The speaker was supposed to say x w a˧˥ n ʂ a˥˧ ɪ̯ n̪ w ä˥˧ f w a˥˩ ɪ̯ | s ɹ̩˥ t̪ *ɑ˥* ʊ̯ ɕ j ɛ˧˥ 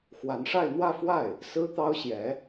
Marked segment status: correct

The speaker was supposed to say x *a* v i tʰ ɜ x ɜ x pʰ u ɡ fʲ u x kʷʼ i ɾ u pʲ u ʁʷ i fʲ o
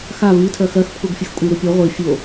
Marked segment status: correct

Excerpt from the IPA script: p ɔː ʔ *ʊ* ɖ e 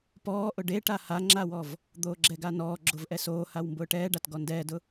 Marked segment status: correct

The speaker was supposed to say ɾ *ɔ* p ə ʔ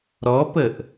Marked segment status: correct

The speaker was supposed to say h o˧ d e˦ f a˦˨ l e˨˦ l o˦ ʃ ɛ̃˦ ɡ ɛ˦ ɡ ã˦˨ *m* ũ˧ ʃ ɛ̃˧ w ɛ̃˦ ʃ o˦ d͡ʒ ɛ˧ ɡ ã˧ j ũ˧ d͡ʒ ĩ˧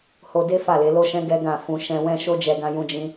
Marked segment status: incorrect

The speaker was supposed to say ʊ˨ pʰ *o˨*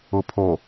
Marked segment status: correct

